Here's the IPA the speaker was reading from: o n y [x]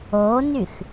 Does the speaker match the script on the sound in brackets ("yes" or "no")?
yes